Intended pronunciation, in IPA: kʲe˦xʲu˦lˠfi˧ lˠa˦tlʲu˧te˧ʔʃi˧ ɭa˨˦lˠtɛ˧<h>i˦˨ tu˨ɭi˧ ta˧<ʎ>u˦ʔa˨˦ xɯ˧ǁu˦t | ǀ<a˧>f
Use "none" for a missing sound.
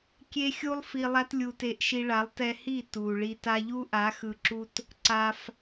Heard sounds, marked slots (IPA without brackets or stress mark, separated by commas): h, ʎ, a˧